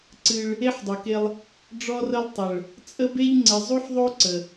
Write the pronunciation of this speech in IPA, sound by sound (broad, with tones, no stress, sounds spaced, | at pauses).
ǀ ɨ˦ ɭ | e˦ ħ dˤ u˨ k e˦ lˠ | ɖ͡ʐ ɔ˦ r ə˦ lˠ tˤ ə˨ ɭ | t͡sʼ ə˦ b e˦ ʎ ŋ͡ǀ ɪ˨ zˤ u˦ ħ ðˤ o˦ ǀ ə˨